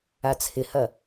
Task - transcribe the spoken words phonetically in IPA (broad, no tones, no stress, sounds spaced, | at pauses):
a t͡sʰ ɪ h ɐ